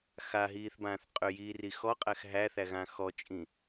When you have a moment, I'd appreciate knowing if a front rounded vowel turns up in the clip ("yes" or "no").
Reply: yes